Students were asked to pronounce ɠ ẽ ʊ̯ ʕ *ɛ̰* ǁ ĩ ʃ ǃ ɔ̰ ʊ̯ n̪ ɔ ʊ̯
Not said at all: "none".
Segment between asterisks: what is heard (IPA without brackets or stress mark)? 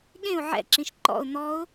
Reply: ɛ̰